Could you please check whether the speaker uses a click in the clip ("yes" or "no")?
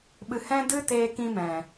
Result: no